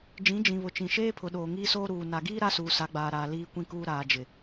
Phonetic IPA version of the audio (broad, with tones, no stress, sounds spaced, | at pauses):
d͡ʒ ĩ˨˦ d͡ʒ ĩ˨ β ʊ˨ t͡ʃ ĩ˨ ʃ eː˦ pʰ ʊ˨ ɗ oː˨ ŋ iː˦ s oː˦ ɾ uː˨ n a˨ ɡ iː˦ ɾ a˦ s uː˨ s a˨˦ ɡ͡b aː˨ ɾ aː˨ l iː˦ kʷ ĩ˦ k uː˦ ɾ aː˨ d͡ʒ ɪ˨